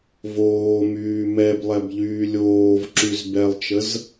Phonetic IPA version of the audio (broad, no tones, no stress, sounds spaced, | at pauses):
v oː m yː m ɛ b lˠ ɛ b ʎ yː lʲ oː v ǁ y z b ɛ lˠ t͡ʃ ə z